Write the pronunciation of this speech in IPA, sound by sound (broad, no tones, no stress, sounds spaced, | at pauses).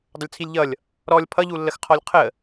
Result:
dˤ ʊ lʲ t͡sʰ i lʲ ʎ ʌ lʲ | ɾ ɔ lʲ pʰ ʌ ʎ u lː ə x qʰ ɔ lʲ qʰ ə